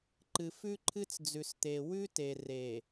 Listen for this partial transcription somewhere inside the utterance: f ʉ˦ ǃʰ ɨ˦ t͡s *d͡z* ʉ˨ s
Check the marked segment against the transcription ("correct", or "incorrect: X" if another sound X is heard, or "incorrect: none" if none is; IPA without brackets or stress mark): correct